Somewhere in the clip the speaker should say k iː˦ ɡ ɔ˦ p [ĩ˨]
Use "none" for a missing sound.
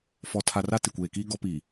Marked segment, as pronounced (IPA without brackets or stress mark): i˨